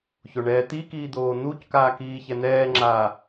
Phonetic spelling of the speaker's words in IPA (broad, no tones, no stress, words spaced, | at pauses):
çoɳɛːt̪ikiː d̪oːn̪uckaː kiːçɛn̪ɛːŋ͡ǁaː